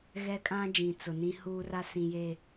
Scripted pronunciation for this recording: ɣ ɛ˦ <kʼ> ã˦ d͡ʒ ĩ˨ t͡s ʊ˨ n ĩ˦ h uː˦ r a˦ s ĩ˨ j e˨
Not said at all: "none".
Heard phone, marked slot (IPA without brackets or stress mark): kʼ